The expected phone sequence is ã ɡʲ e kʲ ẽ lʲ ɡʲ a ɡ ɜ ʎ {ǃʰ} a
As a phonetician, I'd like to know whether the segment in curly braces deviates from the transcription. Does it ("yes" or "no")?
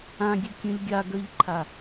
no